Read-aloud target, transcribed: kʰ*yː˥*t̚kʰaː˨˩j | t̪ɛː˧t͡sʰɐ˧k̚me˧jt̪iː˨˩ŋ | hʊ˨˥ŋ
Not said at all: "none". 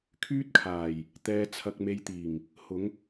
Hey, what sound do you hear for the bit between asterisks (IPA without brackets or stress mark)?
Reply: yː˥